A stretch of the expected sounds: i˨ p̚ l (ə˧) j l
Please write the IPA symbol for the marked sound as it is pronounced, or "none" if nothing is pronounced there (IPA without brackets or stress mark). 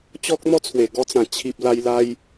a˧